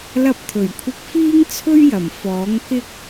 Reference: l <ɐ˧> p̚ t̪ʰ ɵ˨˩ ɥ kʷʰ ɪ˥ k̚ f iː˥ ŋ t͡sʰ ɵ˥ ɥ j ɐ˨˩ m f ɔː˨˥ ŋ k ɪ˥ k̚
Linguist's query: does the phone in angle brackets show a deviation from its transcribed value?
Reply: yes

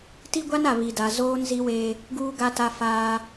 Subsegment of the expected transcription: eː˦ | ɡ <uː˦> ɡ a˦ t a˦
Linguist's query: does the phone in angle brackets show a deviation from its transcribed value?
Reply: no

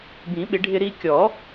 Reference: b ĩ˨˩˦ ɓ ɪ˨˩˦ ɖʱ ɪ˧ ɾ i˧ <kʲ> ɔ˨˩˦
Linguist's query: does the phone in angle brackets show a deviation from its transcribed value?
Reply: no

